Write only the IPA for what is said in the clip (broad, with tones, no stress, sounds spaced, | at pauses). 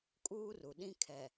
kʼ uː˦ r u˨ ɗ ĩ˦ kʰ ɛ˨